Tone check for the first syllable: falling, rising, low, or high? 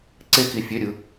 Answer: high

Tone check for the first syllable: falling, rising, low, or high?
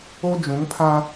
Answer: high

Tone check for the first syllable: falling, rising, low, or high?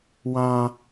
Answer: low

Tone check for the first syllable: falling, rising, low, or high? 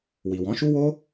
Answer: low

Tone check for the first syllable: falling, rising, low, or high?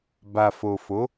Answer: low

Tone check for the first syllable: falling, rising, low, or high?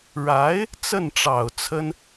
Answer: rising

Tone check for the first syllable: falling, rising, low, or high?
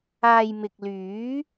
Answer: low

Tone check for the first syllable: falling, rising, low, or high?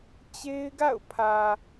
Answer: high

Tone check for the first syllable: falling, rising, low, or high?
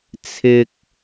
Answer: high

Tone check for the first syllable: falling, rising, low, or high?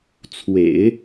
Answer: low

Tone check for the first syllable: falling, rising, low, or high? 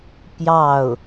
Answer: falling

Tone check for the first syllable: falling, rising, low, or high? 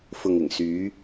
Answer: low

